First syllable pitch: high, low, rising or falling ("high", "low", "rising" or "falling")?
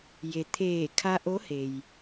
low